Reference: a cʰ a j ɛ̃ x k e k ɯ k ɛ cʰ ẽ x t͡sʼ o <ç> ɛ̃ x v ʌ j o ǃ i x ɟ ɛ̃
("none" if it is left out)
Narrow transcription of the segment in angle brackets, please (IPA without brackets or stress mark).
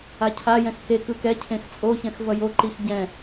ç